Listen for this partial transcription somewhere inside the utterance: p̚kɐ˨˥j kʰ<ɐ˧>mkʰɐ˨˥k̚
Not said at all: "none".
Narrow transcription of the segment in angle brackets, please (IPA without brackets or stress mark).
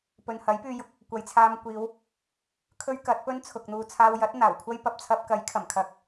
ɐ˨˩